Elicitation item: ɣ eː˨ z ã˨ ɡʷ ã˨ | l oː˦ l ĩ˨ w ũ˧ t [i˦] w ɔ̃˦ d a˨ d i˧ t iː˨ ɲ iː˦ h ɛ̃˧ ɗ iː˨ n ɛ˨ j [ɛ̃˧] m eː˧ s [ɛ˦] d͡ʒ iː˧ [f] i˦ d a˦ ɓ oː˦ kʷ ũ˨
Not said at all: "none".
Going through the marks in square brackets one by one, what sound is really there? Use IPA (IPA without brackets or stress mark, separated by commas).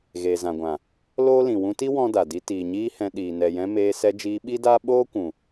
i˦, ɛ̃˧, ɛ˧, ɓ